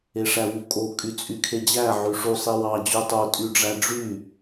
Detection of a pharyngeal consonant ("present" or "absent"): present